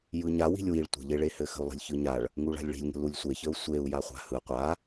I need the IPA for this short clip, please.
j ɯ ɲ a w i̤ lʲ w i ɭ tʷ ə̤ ʎ e ɭ e h ɘ x ə̤ u̯ lˠ i̤ lʲ ç ɯ ɲ a ɭ | ŋ u ɭ a̤ lʲ ɭ i̤ lʲ ŋ ə̤ l u lʲ sʷ e ç ə u̯ sʷ e u̯ j a χʷ a̤ h ɯ qʷ a

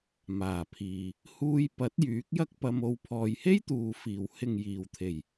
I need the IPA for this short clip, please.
m aː˨˩ pʰ iː˨ | h uː˧ j p ɐ˨˥ t̚ j yː˨˥ k̚ j ɐ˥ k̚ p ɐ˧ m o˧ w pʰ ɔː˨ j h e˥ j t̪ uː˨ f iː˨˩ w h ɪ˨ ŋ j iː˨˩ w t̪ʰ e˨˩ j

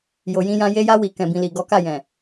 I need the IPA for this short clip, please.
j o˨ j ĩ˧ j ã˧ j e˧ j a˧ w i˨ k ɛ̃˨ b ĩ˨ l i˨ ɡ ɔ˨˦ k a˦˨ j ɛ̃˨

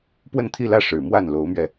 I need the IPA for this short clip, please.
p w ə˥˧ n t̪ʰ i˥˧ l ä˥˩ ʂ ɻ̩˨˩ m w a˥˩ n l o˧˥ ʊ̯ m ɥ ɛ˧

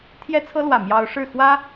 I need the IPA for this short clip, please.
t̪ʰ j ɛ˥ t͡sʰ ɤ˥ l w ä˥˩ m j ɑ˥ ʊ̯ ʂ ɻ̩˥˩ x w ä˥

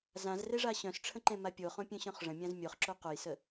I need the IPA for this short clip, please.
z ã z r e ʐ a ɕ œ̃ s ʈ͡ʂʰ ə̃ ǃ ẽ m a pʲ o χ õ pʲ œ̃ ɕ œ̃ χ ʐ ə̃ mʲ ã z mʲ o χ ǁ o q o j s ə

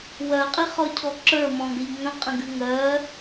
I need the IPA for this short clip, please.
w ɜ qʼ i χ ɔ cʰ ɔ ǁ ə˞ m ɔ̃ ɡ ə ʎ ŋ ə̃ qʼ ə̃ ɡ ʉ ŋ ɜ

